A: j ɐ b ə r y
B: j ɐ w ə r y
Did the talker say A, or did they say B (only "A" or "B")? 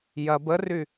A